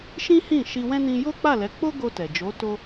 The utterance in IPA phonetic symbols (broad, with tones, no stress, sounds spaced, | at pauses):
ʃ ĩ˦ h ĩ˦˨ ʃ i˧ w ɛ̃˦ n ĩ˧ j o˦ k͡p a˦˨ l ɛ˨˦ k͡p o˦ ɡ o˧ t ɛ˨ d͡ʒ o˨˦ t o˦